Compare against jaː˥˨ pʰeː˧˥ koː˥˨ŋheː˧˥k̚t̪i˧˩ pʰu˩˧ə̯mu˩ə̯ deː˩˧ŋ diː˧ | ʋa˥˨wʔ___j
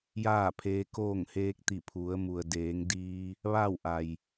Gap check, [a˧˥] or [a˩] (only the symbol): a˩